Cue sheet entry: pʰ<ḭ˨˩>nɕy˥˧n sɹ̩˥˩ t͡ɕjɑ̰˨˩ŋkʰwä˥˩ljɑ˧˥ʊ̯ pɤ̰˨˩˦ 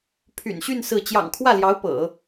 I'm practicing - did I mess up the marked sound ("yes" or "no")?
yes